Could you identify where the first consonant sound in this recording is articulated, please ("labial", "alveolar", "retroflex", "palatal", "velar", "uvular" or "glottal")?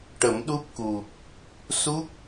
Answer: retroflex